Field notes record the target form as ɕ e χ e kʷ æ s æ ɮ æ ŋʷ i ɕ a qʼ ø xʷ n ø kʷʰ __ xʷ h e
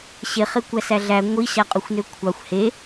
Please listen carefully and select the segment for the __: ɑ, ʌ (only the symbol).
ɑ